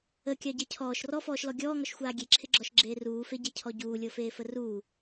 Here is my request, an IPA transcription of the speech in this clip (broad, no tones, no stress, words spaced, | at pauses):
əkʲɑɟe cʰɔːʃ rɔfɔːʃlɔ ɡʲɔːŋɔʃxʷaː ɡʲeǁʰɪɡ͡ǁɔʃɡ͡ǁeː ruːfeɟecʰɔ ɟuːlʲɤfeːfə ruː